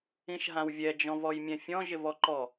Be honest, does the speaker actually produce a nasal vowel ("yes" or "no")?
yes